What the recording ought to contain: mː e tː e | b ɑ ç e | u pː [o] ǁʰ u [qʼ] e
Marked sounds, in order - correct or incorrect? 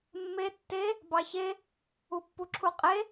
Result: incorrect: u, correct

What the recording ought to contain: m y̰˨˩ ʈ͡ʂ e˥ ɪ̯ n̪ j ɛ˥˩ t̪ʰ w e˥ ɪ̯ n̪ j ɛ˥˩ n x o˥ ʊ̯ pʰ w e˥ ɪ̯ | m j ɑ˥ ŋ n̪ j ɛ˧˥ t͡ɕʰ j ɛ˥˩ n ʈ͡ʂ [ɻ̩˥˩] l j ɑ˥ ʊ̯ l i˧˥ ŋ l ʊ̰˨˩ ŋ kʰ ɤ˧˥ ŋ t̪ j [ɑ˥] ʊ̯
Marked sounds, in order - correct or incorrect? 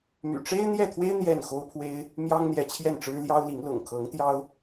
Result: incorrect: ɻ̩˥, correct

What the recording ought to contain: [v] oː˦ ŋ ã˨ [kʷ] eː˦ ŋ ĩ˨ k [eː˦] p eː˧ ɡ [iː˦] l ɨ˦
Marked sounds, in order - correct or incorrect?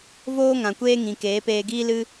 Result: correct, correct, incorrect: eː˨˦, correct

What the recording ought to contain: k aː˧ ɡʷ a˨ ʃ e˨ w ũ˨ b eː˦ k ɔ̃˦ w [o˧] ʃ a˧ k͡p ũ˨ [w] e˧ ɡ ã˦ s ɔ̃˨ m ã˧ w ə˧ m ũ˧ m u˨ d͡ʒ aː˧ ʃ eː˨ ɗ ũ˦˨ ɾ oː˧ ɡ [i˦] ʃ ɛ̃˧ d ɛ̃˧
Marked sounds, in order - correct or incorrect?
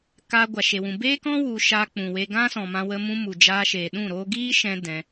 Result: incorrect: u˧, correct, incorrect: iː˦

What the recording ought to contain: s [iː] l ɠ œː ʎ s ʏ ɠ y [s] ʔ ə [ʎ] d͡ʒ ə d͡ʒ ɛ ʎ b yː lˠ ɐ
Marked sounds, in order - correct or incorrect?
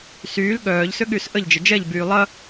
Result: incorrect: yː, correct, correct

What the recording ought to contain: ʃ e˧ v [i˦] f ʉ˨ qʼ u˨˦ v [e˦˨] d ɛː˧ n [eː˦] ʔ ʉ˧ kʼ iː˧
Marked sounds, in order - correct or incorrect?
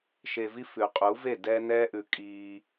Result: correct, correct, incorrect: ɛː˦

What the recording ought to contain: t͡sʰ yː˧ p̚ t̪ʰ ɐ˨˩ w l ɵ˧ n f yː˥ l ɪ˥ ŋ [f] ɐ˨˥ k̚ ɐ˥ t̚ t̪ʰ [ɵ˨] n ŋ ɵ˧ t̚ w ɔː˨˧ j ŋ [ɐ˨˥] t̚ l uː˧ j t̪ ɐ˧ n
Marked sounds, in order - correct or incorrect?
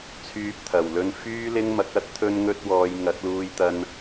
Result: incorrect: m, incorrect: ɵ˧, correct

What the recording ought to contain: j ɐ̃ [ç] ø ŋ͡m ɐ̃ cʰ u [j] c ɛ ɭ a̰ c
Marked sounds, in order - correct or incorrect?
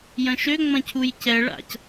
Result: incorrect: ʃ, correct

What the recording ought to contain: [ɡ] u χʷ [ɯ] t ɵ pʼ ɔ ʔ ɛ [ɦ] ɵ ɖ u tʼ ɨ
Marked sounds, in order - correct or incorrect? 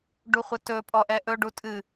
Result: incorrect: ɖ, incorrect: ə, incorrect: ʔ

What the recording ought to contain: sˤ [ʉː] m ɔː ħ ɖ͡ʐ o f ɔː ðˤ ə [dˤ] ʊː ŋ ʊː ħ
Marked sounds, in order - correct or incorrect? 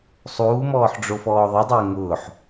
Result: incorrect: uː, correct

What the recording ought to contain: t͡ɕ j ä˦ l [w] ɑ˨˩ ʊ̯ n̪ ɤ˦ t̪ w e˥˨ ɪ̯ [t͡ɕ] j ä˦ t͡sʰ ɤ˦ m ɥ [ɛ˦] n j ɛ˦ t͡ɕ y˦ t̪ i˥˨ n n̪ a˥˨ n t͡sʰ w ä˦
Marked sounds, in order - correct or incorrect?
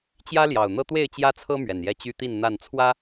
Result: incorrect: j, correct, incorrect: ɛ˨˩

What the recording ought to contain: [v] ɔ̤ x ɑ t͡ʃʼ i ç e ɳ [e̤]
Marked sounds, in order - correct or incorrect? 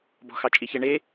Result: incorrect: b, incorrect: e

